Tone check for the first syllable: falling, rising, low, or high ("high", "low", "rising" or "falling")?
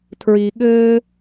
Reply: low